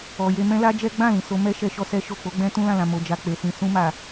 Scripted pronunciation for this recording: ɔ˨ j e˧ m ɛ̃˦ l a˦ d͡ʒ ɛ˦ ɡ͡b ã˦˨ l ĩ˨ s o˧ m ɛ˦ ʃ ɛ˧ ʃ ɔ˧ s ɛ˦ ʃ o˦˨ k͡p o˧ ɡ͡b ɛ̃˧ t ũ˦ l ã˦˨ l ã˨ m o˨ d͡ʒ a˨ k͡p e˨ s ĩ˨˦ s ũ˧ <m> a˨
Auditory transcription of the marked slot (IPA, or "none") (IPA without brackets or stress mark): m